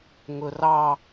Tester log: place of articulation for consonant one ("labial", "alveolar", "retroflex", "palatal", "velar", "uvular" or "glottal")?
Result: velar